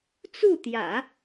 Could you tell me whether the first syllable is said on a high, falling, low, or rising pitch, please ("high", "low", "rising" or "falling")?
falling